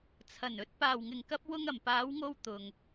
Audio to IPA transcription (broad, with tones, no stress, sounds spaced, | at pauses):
t͡sʰ ɐ˨˩ n ɵ˧ t̚ p aː˨˩ w ŋ ɪ˨˩ ŋ k ɐ˧ p̚ w ʊ˧ ŋ ɐ˨˩ m p aː˨˧ w ŋ o˧ w t̪ ʊ˨ ŋ